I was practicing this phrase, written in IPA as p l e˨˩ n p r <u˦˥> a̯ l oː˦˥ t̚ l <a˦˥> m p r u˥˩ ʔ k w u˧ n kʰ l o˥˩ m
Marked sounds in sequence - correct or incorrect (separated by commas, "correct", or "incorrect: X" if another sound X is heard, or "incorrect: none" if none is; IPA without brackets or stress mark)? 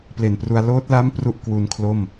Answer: incorrect: u˧, correct